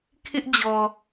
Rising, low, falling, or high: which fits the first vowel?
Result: high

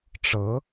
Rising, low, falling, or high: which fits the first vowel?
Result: rising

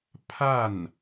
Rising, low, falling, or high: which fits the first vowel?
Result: falling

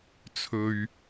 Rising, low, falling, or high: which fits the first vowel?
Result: low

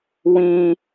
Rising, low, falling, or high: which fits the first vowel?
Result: low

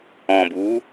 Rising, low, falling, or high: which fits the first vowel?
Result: low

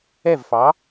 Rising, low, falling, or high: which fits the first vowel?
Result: falling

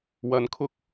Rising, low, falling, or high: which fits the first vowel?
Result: low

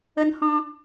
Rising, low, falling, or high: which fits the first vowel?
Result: high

